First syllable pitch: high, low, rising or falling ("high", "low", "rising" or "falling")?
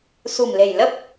low